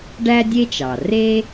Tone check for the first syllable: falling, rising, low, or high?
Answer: high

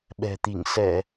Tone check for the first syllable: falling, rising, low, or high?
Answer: low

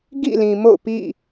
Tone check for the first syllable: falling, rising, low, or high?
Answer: falling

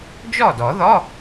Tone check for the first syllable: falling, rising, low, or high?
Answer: falling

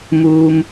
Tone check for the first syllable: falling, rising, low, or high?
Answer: low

